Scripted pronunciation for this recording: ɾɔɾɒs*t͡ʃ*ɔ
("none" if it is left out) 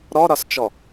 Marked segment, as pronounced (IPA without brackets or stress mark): t͡ʃ